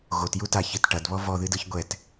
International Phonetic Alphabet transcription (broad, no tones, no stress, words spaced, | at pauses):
ɣotjutaçɨt ʈɐdβɔ vɔðɨdɯç ɡʷɛt